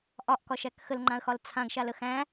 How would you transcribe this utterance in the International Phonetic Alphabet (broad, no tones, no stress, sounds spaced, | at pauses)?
ʔ ɒ ʔ k ɒ ʃ æ k x ə l ŋ͡ǃ ã ə̯ x ɒ l t͡sʰ ã ɡ ʃ a l ə x æ̃